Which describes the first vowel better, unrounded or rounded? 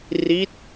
unrounded